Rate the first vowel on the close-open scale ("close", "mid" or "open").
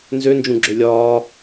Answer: mid